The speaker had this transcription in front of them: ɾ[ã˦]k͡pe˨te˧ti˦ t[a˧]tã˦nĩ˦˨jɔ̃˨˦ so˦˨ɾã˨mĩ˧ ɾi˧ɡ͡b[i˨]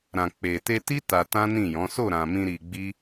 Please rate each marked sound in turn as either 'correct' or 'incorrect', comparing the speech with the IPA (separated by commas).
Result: incorrect, correct, incorrect